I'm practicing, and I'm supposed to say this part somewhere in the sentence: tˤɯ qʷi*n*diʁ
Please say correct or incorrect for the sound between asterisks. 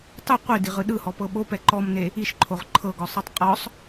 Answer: incorrect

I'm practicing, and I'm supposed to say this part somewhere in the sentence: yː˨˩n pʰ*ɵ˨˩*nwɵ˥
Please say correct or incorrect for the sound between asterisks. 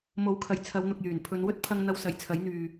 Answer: incorrect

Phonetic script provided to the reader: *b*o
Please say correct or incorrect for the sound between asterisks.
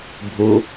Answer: incorrect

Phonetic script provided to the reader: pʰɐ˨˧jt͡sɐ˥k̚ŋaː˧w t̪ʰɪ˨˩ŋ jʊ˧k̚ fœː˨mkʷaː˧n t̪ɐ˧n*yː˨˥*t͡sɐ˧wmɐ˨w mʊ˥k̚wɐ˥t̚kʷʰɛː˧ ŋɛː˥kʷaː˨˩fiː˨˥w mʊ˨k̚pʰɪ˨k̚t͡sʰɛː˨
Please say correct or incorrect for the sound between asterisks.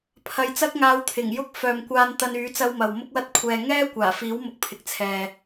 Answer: correct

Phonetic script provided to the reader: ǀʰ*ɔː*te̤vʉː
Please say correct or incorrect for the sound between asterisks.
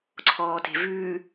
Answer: correct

